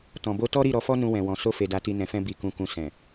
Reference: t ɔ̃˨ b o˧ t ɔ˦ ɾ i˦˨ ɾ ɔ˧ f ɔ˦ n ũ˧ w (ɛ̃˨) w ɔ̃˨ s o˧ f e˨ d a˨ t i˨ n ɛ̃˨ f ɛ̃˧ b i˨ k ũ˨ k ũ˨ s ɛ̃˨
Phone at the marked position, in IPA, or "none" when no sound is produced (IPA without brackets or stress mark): ɛ̃˨